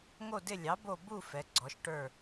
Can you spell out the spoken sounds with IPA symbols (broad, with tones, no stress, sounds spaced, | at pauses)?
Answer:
ŋ o˦˨ d ɪ˦˨ lʲ ɑ˩˥ b o˦˨ b u˦˨ f ɛ˩˥ ɡ͡ǀ ɔ˩˥ ʃ ʈ ə˞˦˨